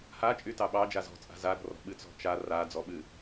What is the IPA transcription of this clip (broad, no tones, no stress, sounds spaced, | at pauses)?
h a t͡ʃʼ y t ɑ ɓ ɑ d͡ʒ a z ɔ̤ t͡sʼ a̤ z a ɾ ɔ̤ r ɔ̤ ɓ ɨ t͡s ɔ̤ t͡ʃ a r a d͡z ɔ ɓ ɨ